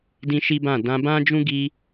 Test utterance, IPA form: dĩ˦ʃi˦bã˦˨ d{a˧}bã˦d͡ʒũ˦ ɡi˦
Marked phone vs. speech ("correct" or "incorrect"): incorrect